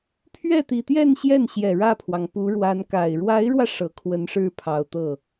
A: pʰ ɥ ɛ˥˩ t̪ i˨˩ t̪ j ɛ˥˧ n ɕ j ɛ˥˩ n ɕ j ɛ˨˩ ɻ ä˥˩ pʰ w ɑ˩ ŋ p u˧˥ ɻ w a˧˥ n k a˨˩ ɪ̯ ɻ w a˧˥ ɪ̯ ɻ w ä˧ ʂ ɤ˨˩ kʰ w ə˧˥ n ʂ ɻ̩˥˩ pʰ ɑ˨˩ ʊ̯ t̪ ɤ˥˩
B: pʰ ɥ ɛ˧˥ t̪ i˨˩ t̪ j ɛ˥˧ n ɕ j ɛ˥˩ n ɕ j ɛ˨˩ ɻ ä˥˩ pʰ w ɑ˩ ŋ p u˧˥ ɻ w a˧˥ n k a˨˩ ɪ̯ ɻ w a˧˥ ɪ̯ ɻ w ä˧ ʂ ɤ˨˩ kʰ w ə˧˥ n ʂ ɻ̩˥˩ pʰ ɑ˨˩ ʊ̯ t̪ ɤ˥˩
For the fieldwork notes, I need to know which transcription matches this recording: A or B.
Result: A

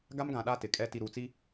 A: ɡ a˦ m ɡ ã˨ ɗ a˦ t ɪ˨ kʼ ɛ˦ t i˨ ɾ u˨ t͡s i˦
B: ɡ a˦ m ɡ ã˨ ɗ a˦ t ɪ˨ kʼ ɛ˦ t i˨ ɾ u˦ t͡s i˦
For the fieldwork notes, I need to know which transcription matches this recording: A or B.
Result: A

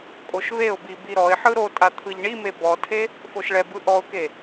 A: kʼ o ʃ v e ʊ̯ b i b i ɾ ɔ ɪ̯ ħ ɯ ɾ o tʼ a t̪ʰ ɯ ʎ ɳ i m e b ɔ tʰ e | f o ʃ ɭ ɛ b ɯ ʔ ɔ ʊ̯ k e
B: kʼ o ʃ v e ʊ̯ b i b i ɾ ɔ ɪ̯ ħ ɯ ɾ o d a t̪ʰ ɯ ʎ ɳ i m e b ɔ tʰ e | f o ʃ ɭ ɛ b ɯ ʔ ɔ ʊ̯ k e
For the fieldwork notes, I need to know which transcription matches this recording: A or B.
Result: A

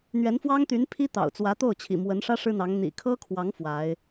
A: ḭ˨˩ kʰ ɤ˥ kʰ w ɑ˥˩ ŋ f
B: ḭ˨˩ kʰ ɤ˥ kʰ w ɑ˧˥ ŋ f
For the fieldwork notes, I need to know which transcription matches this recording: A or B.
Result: B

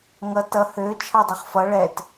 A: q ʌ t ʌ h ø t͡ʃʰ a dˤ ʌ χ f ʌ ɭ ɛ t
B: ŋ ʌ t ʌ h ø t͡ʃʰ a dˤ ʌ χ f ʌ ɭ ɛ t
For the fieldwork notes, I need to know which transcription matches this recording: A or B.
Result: B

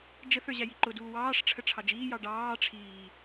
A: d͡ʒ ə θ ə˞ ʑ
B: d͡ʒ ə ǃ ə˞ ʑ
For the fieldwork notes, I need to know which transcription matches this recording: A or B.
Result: A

